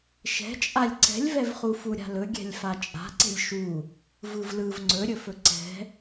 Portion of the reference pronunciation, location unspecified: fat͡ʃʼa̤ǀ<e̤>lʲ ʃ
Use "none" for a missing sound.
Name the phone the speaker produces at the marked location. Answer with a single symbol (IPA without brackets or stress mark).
e̤